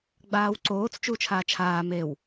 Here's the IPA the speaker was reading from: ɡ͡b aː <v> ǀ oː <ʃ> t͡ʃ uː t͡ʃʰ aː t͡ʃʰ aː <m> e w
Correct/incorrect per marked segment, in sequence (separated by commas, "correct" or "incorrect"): incorrect, incorrect, correct